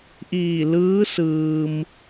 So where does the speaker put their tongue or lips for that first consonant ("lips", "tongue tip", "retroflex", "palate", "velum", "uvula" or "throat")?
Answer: throat